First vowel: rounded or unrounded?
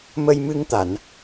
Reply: unrounded